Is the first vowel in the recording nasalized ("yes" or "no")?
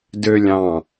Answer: no